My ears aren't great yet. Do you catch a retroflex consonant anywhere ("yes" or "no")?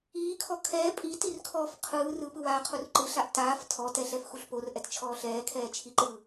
no